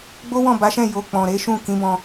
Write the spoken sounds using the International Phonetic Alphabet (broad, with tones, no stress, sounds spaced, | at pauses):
ɡ͡b o˦ w ɔ̃˦˨ b a˨˦ ʃ ɛ̃˦˨ j o˨ k͡p ɔ̃˨ ɾ e˨˦ ʃ ũ˦˨ k ĩ˨˦ b ɔ̃˧